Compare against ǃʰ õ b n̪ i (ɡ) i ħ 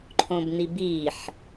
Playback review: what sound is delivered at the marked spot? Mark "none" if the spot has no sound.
b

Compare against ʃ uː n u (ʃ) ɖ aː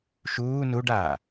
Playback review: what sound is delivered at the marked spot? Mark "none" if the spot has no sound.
none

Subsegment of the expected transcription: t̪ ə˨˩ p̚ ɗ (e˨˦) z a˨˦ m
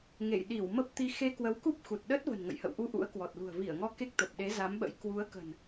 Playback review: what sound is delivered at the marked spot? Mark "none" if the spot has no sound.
e˨˦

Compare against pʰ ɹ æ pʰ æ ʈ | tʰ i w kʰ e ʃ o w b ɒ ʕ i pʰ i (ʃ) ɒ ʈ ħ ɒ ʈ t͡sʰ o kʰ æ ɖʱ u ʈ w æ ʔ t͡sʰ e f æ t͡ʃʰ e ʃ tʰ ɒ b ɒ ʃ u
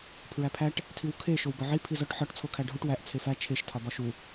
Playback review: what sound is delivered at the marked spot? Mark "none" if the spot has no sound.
z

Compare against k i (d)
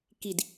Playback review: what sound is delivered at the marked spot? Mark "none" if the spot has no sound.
d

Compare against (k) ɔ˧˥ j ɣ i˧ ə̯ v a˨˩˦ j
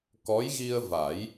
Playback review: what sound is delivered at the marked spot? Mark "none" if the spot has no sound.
k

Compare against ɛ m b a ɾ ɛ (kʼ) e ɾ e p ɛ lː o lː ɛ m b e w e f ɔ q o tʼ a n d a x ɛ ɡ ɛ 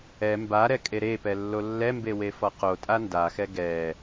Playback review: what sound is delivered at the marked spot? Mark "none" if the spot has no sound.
kʼ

